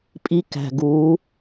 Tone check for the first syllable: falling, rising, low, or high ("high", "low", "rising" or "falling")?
high